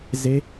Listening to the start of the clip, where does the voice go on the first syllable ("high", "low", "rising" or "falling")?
rising